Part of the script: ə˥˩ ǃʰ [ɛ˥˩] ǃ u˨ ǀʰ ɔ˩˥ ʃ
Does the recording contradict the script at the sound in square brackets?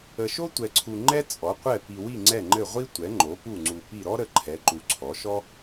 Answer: yes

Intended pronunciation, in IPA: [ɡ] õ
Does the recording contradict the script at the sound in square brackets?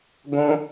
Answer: no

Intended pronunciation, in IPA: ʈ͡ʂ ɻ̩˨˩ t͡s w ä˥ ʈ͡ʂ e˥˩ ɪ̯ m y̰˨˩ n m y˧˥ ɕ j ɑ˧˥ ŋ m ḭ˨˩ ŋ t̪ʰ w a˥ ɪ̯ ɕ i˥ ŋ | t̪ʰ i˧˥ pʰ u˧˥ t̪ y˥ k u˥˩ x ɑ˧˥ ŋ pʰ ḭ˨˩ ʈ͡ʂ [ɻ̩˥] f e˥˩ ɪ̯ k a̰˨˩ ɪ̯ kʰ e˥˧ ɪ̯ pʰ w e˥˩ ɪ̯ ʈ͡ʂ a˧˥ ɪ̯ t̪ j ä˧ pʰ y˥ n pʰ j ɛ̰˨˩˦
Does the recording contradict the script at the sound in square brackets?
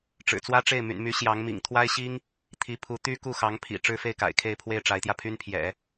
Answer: no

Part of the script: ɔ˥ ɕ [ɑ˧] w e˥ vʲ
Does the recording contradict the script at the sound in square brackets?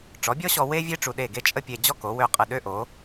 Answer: yes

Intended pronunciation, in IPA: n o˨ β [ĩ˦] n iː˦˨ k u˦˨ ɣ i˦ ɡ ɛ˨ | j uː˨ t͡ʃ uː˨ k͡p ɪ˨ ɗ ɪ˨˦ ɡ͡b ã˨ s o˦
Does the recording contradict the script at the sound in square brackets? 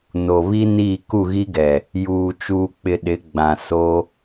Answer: yes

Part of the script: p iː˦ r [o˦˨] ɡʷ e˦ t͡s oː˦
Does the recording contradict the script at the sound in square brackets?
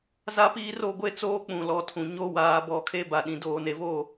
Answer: no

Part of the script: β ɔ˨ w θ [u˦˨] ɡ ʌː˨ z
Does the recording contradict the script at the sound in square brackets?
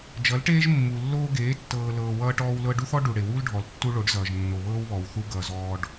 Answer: yes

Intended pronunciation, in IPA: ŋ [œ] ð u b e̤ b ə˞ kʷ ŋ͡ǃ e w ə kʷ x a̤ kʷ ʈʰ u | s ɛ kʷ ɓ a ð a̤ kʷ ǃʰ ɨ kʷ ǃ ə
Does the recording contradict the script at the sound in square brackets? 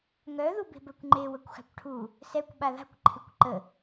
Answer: no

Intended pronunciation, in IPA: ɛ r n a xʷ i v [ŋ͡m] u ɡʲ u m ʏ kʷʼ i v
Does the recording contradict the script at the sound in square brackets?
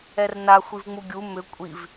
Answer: no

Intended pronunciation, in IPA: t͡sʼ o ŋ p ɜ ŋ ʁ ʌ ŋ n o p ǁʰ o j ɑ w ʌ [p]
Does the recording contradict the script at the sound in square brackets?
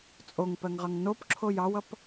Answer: no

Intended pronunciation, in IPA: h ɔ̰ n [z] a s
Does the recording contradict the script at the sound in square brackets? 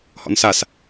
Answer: yes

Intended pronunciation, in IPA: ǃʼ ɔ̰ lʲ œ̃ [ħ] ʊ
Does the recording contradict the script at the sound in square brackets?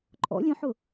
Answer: no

